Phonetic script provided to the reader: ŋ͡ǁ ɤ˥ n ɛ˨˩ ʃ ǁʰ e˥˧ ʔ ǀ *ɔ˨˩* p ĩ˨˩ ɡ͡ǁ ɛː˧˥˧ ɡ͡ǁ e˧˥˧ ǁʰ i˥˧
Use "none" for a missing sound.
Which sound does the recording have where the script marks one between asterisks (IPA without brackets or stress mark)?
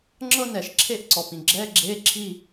ɔ˨˩